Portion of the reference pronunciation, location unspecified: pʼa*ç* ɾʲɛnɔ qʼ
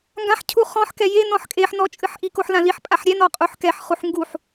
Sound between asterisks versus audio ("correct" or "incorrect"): incorrect